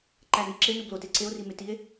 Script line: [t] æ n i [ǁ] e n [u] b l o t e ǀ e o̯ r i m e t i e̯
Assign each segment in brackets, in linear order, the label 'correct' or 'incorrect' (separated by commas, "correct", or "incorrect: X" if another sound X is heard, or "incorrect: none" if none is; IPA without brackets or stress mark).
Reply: incorrect: ǃ, correct, correct